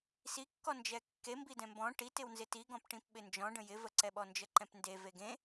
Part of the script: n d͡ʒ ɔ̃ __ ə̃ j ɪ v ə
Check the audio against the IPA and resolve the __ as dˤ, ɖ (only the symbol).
ɖ